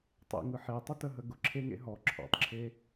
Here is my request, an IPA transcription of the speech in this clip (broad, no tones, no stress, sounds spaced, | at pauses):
tˤ ḛ ŋ ɯ ħ e tˤ ʊ t ə ɦ ə ɡ ʊ ǁʰ e ŋ ḛ ɦ ɔ ǁʰ ɔ̰ tˤ ǁʰ e